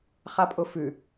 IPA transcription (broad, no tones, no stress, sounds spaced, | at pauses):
χ a pʼ ʊ f ʉ